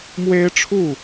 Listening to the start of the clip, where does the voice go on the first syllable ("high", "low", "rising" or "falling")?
high